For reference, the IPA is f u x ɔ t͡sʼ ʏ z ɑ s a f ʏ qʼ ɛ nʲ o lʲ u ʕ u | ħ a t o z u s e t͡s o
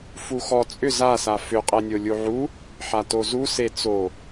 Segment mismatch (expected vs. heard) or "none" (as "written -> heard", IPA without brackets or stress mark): ɑ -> a